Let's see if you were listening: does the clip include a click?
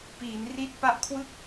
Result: no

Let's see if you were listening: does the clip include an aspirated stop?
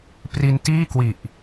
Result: no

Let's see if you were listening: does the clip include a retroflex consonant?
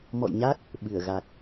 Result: no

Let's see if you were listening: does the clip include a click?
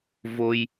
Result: no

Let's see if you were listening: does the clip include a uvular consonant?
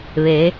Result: no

